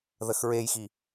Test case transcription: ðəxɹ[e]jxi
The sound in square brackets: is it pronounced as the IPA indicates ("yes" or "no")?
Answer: yes